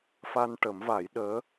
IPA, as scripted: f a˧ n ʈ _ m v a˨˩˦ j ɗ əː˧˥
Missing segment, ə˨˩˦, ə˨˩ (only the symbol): ə˨˩˦